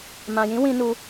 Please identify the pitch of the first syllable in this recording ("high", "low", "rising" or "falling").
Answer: low